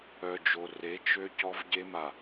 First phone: œ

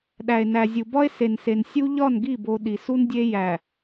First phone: ɗ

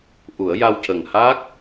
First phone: ʔ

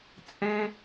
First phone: t͡sʼ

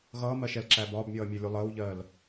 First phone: ɣ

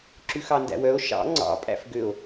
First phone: ǁ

